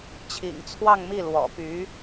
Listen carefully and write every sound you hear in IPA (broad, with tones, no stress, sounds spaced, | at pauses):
t͡ɕʰ ḭ˨˩ ŋ t͡sʰ w ɑ˥˧ ŋ m i˥˩ l w ɔ̰˨˩ p y˧˥